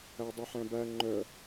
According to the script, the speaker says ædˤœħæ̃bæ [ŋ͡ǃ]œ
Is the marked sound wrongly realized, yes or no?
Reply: no